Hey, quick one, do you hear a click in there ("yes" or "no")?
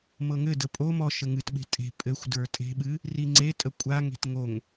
yes